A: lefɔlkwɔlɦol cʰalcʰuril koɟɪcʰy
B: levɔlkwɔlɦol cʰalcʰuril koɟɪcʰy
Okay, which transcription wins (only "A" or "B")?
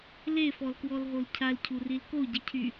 A